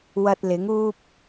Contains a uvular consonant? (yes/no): no